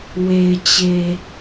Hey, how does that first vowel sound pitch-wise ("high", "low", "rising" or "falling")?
low